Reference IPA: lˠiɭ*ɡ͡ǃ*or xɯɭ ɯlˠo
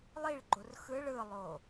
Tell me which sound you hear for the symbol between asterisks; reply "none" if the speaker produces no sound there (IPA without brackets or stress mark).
ɡ͡ǃ